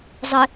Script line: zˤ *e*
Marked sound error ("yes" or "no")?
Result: yes